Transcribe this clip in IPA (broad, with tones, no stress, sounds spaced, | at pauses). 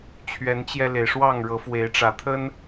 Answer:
t͡ɕʰ ɥ ɛ˨˦ n t͡ɕ j ɛ˧ l e˩ ɪ̯ ʂ w ɑ˥˨ ŋ ɻ ɤ˨˦ f w e˨˦ ɪ̯ ʈ͡ʂ ä˨˩ t̪ʰ ə˦ n